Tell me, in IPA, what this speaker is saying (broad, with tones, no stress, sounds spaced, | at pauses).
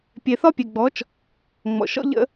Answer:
pʲ e˨ θ ɒ˦ pʲ e˨ ɡ͡b ɔ˨˦ t͡ʃ | ŋ͡m ɔ̰˨ ʃ ɔ̰˦ ʎ ə̰˦